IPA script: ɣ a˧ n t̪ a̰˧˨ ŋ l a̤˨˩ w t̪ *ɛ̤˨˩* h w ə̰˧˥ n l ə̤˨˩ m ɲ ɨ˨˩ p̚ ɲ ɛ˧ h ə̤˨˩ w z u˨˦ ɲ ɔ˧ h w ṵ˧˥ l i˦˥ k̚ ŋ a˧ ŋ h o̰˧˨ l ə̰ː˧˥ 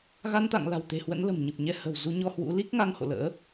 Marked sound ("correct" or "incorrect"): incorrect